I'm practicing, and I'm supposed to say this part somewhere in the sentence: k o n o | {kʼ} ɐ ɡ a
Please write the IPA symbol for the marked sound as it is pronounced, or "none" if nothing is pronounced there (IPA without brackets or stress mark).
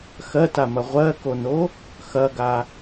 x